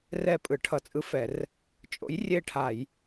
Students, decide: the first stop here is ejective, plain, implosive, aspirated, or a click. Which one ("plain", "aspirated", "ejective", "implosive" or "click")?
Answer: ejective